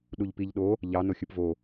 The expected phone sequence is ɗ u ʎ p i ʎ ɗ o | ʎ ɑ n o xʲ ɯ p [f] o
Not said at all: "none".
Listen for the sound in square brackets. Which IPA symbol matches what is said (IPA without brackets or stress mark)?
v